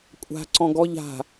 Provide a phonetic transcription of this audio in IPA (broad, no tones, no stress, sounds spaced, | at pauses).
kʷʼ a̤ ǀ ɔ̃ ɡ ɔ ʎ a̤